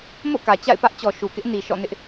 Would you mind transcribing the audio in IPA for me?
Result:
m o̰˦˨ k ä˨ t͡ɕ a̰˦˨ ɪ̯ p ä˦ ʔ t͡ɕ ɔ˨ ʃ u˨ k ɪ˦ ʔ n i˨ ʃ ɔ̰˦˨ n ɪ˦ ʔ

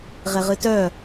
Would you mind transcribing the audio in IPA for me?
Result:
ʁ e ʁ ɨ t œ

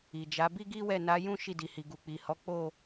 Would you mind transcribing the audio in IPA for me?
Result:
i˨ d͡ʒ a˨˦ b i˦ ɡ i˦ w ɛ˦˨ n a˨˦ j ũ˦ ʃ i˦˨ d i˨ h i˨ ɡ u˨ k͡p i˨ h ɔ˨˦ k͡p o˦˨

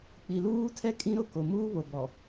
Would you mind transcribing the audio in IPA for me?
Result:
k͡p i˨ l uː˦ tʰ ɛ˦ kʼ ĩ˦ ɾ ʊ˦˨ k o˨ m uː˦ β o˨ b ɔ˨

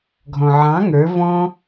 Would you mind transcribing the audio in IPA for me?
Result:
ɡʱ ɔ̃ ʕ ɑ̃ ŋ ə˞ v ɔ̃

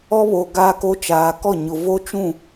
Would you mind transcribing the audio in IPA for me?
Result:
ɔ˦ β oː˨ ɡ aː˦ k o˦ t͡ʃ aː˨ k ɔ˦˨ ɲ ʊ˨ v o˦ t͡ʃ ũ˦˨

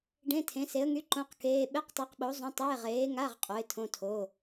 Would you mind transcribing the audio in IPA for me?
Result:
ɖ ẽ˧˥˧ tʰ ẽ˨˥ s e˨˥ ə̯ ŋ y˧˥˧ ǃ õ˧˥˧ q k eː˧˥˧ ɓ e˧˥˧ q tˤ e˨˥ q ɓ o˨˥ zˤ õ˧˥˧ tˤ eː˧˥˧ ʁ eː˨˥ ŋ a˧˥˧ ʁ qʼ o˨˥ ɪ̯ tʰ õ˧˥˧ tʰ o˧˥˧

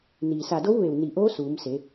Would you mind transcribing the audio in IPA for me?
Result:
n iː˩ s a˧˩ d o˧˥ w ʋ e˧˩ w n i˧˩ ʔ oː˧˥ s uː˩˧ m s e˩˧

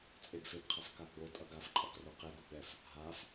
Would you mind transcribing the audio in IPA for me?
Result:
t͡sʼ e b f e b qʰ ʌ f k a ɡ͡b o tʼ ʌ ɡ a f ǃʼ ʌ q r o q e ɡ u ɡ͡b ɛ f | ɦ a f

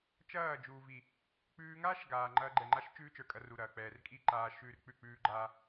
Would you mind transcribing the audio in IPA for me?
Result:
t͡ʃ ɐː˦˨ d͡ʒ uː˨ v i˨ | k͡p ʉː˧ ŋ aː˦ ʃ ɡ aː˨ ŋ͡ǃ ɐː˧ ɡ͡ǃ ɛ˨ ŋ͡ǃ a˦ ʃ t͡ʃ ʉː˦ t͡ʃ ə˞˨ kʼ ɐ˧ r u˨ ɾ ɐː˨ k͡p ɛː˨ r kʼ i˦˨ ǃ aː˨ ʃ ʉː˦ r k͡p ʉ˦˨ k͡p ʉː˦ ɡ͡ǃ aː˦

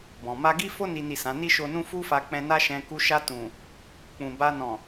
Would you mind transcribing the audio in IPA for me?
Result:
b ɔ̃˨ m a˧ ɡ i˦ f o˦ n i˦ n i˦˨ s ã˨˦ n i˦ ʃ o˧ n ũ˦ f u˦ f a˧ k͡p ɛ̃˧ n a˦ ʃ ɛ̃˧ k u˧ ʃ a˧ t ũ˨ | k͡p ũ˨ b a˧ n ɔ̃˨

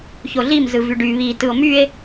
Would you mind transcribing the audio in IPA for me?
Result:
ç o ɮ i m z ɯ v y ɖ y β i t ɯ o̯ m y e̯

